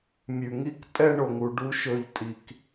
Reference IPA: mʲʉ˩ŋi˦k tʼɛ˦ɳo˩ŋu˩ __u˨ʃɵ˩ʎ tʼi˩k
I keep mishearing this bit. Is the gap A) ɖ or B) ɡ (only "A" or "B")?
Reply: A